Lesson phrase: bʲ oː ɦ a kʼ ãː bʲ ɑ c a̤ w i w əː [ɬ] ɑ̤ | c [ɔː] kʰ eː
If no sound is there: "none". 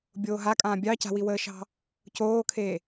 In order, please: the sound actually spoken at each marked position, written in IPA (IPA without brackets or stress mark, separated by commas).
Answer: ʃ, oː